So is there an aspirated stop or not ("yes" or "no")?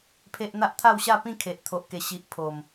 yes